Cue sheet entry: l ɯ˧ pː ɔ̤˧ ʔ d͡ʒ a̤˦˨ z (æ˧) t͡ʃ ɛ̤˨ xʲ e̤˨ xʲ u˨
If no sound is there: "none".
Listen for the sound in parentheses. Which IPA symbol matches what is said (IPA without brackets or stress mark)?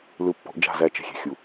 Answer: æ˧